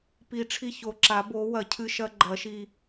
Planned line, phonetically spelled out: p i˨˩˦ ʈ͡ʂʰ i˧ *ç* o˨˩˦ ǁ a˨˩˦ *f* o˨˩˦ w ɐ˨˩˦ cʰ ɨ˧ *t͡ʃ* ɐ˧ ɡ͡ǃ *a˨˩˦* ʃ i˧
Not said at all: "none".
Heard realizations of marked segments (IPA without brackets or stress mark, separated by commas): ç, b, ʃ, ɐ˨˩˦